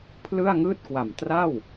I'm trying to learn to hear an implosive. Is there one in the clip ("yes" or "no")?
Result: no